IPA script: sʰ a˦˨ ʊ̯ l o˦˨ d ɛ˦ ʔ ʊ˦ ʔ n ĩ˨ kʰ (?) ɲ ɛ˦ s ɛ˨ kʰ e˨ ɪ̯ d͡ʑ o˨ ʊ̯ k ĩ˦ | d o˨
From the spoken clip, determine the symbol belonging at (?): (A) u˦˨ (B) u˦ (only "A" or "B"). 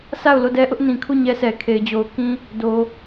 A